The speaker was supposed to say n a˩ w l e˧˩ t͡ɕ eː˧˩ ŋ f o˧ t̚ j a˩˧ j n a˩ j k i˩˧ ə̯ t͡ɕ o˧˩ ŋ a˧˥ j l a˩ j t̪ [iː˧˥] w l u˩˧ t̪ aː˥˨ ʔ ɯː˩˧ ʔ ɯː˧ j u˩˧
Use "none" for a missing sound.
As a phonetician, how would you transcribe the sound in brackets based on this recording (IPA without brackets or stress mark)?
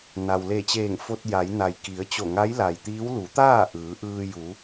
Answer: iː˧˥